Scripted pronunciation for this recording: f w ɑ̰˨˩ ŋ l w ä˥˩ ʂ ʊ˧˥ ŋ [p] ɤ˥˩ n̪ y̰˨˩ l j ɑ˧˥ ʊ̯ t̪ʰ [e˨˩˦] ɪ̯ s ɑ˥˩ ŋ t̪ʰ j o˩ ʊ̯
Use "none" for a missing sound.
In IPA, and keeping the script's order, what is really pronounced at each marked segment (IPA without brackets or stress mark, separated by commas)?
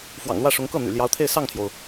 k, e˥˧